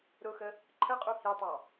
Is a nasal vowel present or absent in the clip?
absent